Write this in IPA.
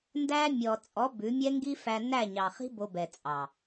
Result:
ndæ˦ mʲɔ˨t͡sʼɔ˨˦ bʉ˨˦mʲɛ˦ ŋɡi˦fæ˧ næ˦˨ɲɑ˨χi̤˦ bo˧bɛ˨t͡sʼɑ˨

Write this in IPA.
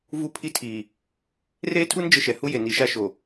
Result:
vu˦˨pʰi˦tʰiː˨ | reː˦tʰu˦n d͡ʒɪ˦ʃɛ˨ hu˦je˨ ni˨˦ʃa˦ʃo˨

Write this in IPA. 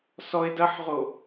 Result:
sɔɪ̯ dɐħʁo

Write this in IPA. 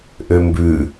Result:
ʔømbʉ

